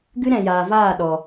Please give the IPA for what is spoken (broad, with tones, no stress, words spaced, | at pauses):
ɡɨ˦ɾɛ̃˨jaː˨vaː˦˨ ɗɔ˨